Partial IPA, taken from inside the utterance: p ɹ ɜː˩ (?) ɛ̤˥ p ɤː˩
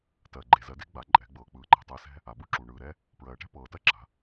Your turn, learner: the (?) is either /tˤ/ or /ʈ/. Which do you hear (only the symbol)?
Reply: ʈ